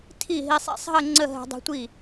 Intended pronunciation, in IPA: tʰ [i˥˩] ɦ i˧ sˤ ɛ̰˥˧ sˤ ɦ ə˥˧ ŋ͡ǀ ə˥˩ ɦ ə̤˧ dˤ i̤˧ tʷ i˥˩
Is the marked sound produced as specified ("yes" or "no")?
yes